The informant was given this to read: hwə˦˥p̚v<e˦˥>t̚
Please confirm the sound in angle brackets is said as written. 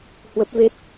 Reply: yes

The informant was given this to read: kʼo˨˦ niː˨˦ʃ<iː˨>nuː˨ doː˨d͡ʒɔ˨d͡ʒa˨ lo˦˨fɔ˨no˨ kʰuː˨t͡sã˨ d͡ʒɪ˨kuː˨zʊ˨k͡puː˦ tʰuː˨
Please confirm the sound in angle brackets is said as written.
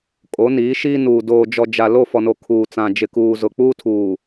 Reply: no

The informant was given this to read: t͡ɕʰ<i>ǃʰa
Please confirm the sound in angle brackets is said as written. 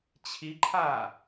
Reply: yes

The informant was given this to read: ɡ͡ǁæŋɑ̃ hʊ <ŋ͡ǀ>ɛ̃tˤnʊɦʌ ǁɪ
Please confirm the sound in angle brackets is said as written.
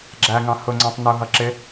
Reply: yes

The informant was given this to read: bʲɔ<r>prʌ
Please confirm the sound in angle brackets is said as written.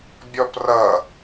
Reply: no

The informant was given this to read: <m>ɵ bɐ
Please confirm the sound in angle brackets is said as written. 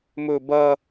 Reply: yes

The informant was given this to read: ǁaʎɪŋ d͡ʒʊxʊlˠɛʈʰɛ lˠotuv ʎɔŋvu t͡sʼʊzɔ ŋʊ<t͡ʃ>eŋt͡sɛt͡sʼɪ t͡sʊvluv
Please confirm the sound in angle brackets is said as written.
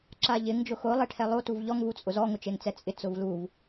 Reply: yes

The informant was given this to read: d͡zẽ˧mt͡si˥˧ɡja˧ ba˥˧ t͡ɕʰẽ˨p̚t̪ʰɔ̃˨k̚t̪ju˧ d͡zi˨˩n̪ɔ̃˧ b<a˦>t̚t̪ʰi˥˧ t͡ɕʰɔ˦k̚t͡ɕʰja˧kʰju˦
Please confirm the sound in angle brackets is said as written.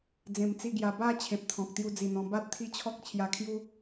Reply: yes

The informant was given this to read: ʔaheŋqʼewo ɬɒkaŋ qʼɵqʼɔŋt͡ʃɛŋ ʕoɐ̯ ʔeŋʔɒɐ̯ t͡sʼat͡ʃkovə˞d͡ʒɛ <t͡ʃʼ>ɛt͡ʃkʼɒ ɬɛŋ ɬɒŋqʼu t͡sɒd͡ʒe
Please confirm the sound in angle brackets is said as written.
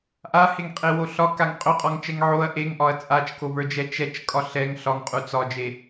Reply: no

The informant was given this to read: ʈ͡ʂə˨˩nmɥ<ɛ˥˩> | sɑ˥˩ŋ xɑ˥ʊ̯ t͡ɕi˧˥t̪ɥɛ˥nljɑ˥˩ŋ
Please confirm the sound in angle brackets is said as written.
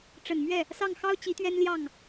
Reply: yes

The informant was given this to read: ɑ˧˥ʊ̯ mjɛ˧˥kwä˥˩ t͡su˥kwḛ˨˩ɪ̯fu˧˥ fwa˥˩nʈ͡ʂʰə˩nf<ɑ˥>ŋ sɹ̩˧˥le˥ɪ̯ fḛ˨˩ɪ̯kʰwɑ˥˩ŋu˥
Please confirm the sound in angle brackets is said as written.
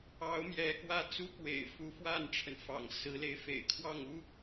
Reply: no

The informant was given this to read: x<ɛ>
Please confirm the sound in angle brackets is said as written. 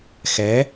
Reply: yes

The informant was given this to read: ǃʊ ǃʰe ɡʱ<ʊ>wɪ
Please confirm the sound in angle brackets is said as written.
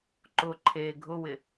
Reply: yes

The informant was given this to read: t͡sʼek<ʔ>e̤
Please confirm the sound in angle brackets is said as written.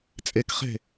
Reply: no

